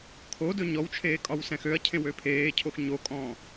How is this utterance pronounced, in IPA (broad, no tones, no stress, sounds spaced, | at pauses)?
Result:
kʰ o d ɵ ɲ ɔ w t͡ʃʰ eː kʼ ɒ w s ɛ̃ x ø ɐ̯ cʰ ẽ w ø pʰ eː cʰ o x ɲ o kʼ ɔ̃ː